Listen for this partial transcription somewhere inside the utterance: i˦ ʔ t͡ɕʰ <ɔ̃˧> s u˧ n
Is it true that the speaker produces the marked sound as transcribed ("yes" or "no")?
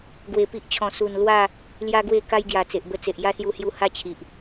yes